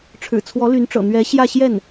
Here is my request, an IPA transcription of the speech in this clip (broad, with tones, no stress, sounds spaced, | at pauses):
ʈ͡ʂʰ ɻ̩˨˩ t͡sʰ w ɔ˧˥ l y˧˥ n ʈ͡ʂ ɤ̰˨˩ n̪ ɥ ɛ˧˥ ɕ j ä˥˧ ɕ j ɛ˥˩ n